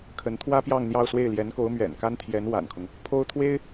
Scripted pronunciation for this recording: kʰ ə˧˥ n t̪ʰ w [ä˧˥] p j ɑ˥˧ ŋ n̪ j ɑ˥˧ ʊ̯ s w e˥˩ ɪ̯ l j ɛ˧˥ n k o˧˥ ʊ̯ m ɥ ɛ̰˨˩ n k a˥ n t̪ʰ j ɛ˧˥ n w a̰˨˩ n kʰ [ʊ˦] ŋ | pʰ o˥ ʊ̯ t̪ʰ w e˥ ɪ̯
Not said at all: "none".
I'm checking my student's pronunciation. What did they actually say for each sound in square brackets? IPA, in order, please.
ä˥, ʊ˦

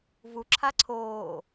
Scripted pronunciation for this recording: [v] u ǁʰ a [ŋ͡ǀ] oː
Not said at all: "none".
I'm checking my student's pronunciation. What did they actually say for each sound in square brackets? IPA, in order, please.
v, ǀʰ

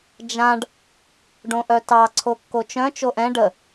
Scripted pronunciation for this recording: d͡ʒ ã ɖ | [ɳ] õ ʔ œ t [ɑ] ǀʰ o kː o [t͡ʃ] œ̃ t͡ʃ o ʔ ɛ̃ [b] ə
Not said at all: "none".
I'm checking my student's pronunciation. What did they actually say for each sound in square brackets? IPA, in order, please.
ɖ, ɑ, t͡ʃ, ɖ

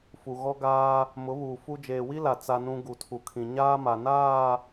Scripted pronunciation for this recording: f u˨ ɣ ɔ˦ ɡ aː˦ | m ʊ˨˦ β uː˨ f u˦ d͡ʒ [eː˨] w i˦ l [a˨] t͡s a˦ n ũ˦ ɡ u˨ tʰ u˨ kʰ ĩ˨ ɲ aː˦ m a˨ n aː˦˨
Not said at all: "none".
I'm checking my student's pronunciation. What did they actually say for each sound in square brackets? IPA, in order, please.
eː˨, a˨

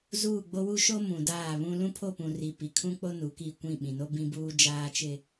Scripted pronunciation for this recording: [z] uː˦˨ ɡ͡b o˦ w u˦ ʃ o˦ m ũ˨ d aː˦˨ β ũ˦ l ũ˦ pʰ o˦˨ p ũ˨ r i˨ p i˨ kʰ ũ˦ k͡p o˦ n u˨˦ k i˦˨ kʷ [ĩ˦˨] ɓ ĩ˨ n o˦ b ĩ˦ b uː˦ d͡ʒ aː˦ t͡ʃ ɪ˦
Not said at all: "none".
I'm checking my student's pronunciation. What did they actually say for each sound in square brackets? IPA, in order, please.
z, ĩ˦˨

